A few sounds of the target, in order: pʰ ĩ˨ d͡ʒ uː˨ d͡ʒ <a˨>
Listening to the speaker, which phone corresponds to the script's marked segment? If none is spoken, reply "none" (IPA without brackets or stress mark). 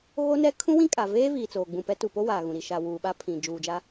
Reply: a˦